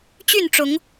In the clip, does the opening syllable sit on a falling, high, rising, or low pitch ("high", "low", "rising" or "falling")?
falling